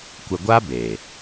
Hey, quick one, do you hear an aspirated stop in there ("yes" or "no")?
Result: no